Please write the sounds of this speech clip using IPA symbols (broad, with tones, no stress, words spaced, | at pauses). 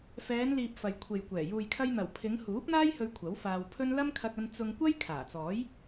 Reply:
fɛː˨˧nliː˨p̚ fɐ˨jkʷʰe˨jkʷɛː˨˩ juː˨jkʰɐ˧jn̪ɐ˨˩wpʰɪ˨˧ŋ huː˨˥p̚n̪aː˥j hɵ˧ɥ kʷʰɐ˨˥wfaː˧w pʰɵ˥n lɐ˥mkʰɐ˧k̚ɐ˧n t͡sʊ˧ŋkʷɐ˥j kʰaː˨˩t͡sɔː˨˥j